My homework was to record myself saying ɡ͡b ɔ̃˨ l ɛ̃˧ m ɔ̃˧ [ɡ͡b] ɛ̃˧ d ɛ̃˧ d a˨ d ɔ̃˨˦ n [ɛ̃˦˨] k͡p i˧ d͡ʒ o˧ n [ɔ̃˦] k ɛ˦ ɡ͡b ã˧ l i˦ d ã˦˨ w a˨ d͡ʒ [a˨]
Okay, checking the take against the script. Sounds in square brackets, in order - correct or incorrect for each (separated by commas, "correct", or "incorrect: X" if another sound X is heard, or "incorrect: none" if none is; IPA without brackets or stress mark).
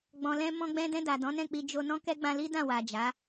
correct, correct, correct, incorrect: a˨˦